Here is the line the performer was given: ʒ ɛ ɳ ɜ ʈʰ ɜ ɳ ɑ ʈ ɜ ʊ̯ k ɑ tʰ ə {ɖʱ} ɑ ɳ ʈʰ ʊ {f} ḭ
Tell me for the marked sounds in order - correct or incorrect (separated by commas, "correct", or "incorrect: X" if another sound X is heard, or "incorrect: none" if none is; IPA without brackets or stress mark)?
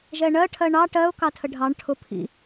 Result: correct, incorrect: pʰ